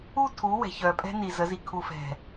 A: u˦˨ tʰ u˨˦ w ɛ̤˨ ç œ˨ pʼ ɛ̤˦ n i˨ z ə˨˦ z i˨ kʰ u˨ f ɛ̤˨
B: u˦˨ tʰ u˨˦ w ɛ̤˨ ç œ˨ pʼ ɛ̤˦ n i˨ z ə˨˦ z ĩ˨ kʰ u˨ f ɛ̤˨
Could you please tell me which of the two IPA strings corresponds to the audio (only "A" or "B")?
A